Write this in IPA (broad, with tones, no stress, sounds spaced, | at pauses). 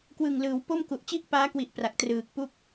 k w ɯ˨˩ ŋ l ɯː˩˦ w p o˥˩ m k u˨˩ ʔ t͡ɕ i˥˩ ʔ p aː˦˥ k w i˨˩ ʔ p r a˨˩ k̚ t r ɯː˨˩ k̚ p u˥˩ k̚